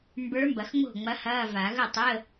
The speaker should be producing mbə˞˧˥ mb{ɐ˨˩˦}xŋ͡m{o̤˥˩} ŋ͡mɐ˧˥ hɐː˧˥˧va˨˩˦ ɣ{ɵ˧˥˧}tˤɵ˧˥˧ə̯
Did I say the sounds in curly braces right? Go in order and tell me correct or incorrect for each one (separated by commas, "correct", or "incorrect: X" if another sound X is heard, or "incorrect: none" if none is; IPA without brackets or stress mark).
correct, correct, incorrect: ɵ˥˩